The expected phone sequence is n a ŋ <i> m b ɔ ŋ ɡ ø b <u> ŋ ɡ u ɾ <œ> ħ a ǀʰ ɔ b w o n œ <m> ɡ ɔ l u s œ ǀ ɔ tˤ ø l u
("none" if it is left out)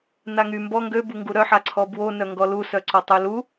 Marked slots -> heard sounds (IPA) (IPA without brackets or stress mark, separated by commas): y, u, œ, ŋ